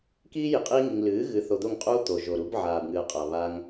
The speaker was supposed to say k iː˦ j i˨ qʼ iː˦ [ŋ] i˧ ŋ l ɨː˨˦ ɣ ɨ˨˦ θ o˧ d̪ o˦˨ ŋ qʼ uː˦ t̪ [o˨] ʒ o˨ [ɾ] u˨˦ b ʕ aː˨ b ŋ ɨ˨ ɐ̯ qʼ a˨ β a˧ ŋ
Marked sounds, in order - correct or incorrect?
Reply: correct, correct, correct

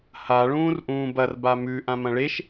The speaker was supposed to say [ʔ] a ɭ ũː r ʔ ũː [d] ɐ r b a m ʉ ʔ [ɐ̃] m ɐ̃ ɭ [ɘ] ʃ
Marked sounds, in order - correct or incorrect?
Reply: incorrect: h, incorrect: b, incorrect: ã, incorrect: e

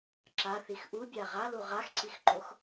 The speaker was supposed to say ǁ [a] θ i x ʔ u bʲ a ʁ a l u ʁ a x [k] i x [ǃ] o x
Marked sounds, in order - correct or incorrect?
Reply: correct, incorrect: ǀ, correct

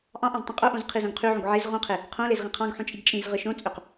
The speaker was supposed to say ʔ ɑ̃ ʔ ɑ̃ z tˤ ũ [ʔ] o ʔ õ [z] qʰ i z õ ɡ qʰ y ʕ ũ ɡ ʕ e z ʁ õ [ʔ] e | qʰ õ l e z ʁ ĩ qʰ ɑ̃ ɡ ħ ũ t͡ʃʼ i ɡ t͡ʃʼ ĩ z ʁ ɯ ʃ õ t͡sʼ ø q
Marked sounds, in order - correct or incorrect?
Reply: incorrect: qʼ, correct, incorrect: qʰ

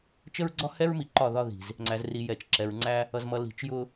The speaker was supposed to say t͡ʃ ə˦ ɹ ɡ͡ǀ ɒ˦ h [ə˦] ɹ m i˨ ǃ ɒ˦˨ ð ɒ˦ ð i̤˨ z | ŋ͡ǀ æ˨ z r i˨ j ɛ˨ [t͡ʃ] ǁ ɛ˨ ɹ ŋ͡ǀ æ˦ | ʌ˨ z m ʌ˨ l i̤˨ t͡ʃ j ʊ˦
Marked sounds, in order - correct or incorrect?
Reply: incorrect: ɛ˦, correct

